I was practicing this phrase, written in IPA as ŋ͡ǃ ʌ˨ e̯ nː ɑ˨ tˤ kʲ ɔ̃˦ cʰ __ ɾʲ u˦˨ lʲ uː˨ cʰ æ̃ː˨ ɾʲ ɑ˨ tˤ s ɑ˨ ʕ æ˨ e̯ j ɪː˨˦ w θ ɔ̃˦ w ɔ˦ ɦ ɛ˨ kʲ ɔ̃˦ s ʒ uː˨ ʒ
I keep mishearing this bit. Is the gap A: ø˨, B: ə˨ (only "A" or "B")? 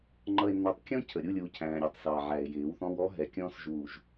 B